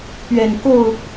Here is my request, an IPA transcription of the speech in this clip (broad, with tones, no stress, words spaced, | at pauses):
pɥɛ˨˩nko˥˨ʊ̯